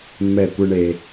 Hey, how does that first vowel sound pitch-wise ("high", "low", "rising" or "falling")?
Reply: falling